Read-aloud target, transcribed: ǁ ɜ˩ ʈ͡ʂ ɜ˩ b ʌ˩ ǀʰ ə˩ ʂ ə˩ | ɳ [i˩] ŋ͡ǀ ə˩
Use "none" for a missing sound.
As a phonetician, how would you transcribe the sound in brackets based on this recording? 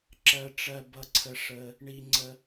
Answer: i˩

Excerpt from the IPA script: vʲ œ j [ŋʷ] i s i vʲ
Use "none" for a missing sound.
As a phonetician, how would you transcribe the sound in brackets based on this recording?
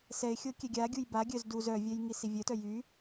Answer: ŋ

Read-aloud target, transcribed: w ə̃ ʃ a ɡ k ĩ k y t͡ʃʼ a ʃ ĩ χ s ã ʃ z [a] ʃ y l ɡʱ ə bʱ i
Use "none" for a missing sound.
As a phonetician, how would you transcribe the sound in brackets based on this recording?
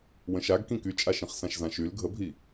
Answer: ã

